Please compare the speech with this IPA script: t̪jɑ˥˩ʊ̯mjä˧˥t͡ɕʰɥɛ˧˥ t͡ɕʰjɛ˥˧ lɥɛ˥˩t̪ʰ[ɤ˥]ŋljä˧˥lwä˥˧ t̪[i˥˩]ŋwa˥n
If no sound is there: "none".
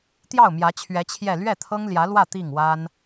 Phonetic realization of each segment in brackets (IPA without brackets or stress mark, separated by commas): ɤ˥, i˥˩